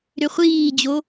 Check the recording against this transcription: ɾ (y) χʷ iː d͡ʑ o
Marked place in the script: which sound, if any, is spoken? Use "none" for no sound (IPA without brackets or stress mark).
ʏ